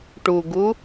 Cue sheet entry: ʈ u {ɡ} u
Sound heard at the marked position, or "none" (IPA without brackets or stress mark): ɡ